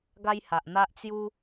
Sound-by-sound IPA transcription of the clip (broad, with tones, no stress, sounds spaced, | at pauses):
ɡ a˦ j h a˨ ʔ n̪ a˦ ʔ t͡s j u˦